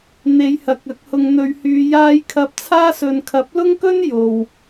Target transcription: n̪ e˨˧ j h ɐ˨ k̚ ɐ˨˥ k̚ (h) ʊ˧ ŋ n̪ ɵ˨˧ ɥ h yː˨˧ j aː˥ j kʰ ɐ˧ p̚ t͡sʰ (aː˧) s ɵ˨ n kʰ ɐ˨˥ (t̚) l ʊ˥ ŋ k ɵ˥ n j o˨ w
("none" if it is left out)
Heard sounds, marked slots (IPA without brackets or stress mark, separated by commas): h, aː˥, p̚